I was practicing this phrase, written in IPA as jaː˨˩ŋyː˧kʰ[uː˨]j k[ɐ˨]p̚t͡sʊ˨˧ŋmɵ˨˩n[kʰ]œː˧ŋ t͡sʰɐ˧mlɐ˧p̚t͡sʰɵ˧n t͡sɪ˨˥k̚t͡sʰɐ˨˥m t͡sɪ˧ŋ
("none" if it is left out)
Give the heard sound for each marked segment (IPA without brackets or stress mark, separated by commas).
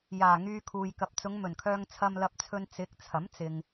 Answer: uː˨, ɐ˨, kʰ